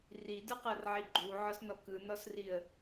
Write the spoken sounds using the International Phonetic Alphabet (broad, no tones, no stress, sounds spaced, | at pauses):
r i d ɯ q ɤ r ʕ i ɡ͡ǃ u ʕ ɔ s n ɔ k ɯ n ɔ s r i ə̯